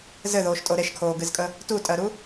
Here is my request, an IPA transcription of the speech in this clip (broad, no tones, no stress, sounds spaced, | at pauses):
z ɘ ð oː ʃ tʼ o ɾ e ʃ kʰ oː ɡ ɨ z kʼ ə | t u tʼ ɜ ɾ u